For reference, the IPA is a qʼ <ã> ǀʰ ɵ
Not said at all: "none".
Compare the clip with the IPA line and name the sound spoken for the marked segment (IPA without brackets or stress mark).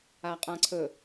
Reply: ã